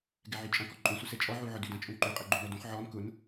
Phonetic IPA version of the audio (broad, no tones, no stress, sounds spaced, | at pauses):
ɡ ɛ ʕ y t͡ʃʼ ɐ̃ k ɔ ǃʼ ũ s u s ɛ t͡ʃʼ ɔ ʕ u ʕ ʊ d y d ɐ̃ t͡ʃʼ ũ ǃ y qʼ ɛ ɡ͡ǃ ũ n ɔ d ũ χ ʕ ɔ n k ʊ n